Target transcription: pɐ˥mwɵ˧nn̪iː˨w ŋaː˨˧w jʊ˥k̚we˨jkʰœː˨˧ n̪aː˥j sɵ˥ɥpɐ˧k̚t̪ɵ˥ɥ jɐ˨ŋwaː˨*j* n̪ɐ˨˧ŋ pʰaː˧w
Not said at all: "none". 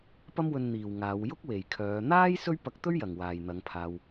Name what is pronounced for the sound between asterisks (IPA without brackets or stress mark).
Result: j